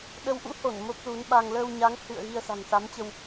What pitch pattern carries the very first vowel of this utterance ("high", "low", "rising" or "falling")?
rising